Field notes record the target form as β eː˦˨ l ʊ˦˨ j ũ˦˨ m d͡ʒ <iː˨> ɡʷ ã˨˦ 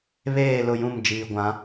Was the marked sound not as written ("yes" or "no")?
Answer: no